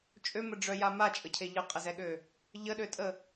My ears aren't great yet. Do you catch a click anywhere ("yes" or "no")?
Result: no